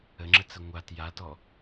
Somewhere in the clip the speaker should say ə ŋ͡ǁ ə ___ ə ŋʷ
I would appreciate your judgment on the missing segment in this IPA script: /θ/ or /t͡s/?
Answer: t͡s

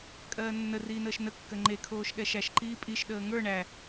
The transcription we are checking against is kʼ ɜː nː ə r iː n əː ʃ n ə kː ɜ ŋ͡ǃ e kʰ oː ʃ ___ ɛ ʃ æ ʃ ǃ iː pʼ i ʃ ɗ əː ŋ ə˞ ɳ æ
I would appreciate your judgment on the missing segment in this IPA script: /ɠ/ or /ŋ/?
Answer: ɠ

